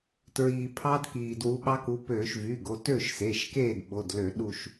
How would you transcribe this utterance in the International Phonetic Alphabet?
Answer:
t ɹ iː˩ pʰ ɑ˦˥ d k iː˩ d w u˨˦ ɓ ɑ˦˥ k u˨˦ p øː˧˩˧ ʃ v y˩˧˩ ɡ o˩˧˩ t ø˥˨ ʃ s e˩˧˩ ʃ k eː˥˨ d ɓ o˩˧˩ d l ø˧˩˧ ɗ u˥˨ ʃ

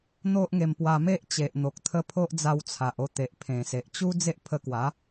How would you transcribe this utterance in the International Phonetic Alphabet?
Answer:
n̪ o˦ ʔ ŋ e˧ m p w a˧ m e˦ ʔ t͡ɕ e˨ ʔ n̪ o˨ k̚ t̪ʰ ə˧ pʰ o˦ ʔ d͡z a˧ w t͡sʰ a˨ ʔ o˧ t̪ e˨ ʔ pʰ ẽ˨˩ s e˨ ʔ t͡ɕ u˦ d͡z e˦ ʔ pʰ ə˧ k w a˨˦

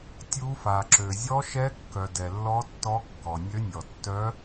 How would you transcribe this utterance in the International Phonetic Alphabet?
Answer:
tʲ u˧˥ f a˩ ǁ ø˩ zʲ ɔ˧˥ ʃ ɛ˧˥ kː œ˩ d ɛ˩ lː ɔ˧˥ tː ɔ˧˥ kː ɔ˩ nʲ ø˧˥ nʲ ɔ˩ tː œ˧˥

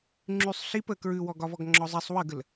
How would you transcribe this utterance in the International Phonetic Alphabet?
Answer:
ŋ͡ǁ y sˤ ɬ i p ə k ɹ ʉ w ɔ ɡ ɒ v ɔ ɡ ŋ͡ǁ ɔ zˤ i sˤ w ə ɡ ə l

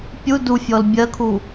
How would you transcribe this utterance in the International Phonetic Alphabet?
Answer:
pʲ u d u fʲ ɔ l bʲ ɜ kʰ u

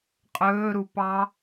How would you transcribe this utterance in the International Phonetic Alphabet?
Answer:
qʼ ɵː ɾ u p ɑ

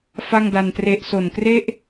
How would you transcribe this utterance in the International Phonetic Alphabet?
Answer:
f a˥˩ ŋ d a˧ n t r e˦˥ ʔ s o˨˩ n k r e˥˩ ʔ

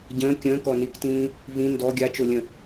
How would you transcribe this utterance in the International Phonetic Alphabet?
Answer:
ɟ ə̃ː kʲ ə̃ː k ɔ n i k t ĩː | v ĩ n d ɔ ɡʲ a t͡ʃ o lʲ ə̃

